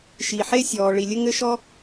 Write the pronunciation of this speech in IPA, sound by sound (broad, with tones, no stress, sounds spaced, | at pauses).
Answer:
ʃ i˩ ħ e˥ sʲ ɔː˩ ɭ i˩ lʲ ɘ˥ ŋ ɘ˥ ʃ ɔ˥